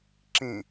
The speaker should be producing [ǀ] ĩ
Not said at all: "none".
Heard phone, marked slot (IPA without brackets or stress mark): ǁ